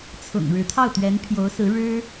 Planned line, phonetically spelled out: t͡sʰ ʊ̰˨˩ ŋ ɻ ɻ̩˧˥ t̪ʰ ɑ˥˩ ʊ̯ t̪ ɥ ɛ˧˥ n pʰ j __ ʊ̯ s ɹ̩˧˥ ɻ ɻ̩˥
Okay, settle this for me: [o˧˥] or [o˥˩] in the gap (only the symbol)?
o˧˥